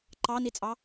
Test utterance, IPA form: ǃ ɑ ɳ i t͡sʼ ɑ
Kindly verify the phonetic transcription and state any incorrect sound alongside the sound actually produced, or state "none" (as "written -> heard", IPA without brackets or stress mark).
ɳ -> n